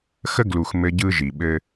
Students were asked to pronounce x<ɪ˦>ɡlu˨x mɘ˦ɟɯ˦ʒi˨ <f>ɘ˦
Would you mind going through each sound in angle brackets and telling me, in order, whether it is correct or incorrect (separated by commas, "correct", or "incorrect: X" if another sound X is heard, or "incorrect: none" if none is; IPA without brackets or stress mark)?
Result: incorrect: ə˦, incorrect: ɓ